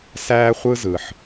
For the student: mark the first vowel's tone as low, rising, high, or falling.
high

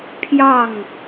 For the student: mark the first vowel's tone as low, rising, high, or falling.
falling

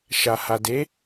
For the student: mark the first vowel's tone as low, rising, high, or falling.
low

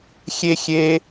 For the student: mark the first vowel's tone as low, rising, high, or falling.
high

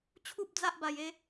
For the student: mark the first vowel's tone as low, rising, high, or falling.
high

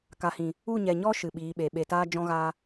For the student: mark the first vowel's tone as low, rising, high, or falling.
low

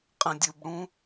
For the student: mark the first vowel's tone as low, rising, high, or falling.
low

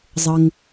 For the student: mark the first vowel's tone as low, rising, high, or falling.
low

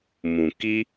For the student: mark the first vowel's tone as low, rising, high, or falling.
low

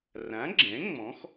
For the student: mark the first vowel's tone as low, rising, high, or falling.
rising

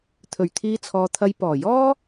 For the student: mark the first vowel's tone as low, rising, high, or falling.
low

